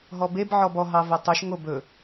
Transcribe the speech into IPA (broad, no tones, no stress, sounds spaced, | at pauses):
ɦ ɔ b e b ʕ ɔ b ɔ ɦ ɑ v ɛ tˤ ɵ ʃ ŋ o b ɵ